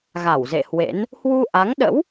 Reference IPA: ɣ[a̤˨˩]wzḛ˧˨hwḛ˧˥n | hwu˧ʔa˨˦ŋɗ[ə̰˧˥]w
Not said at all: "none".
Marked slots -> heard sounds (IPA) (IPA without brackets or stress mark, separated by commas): a˧˩, ə̰˧˥